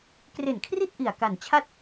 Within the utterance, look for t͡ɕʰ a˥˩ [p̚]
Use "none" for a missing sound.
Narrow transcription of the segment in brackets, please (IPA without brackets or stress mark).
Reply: t̚